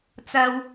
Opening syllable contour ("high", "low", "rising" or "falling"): high